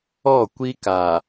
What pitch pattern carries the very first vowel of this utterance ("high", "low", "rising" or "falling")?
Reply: falling